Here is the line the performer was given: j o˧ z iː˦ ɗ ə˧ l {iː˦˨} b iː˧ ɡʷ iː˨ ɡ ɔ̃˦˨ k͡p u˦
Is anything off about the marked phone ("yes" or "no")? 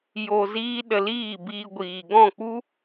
no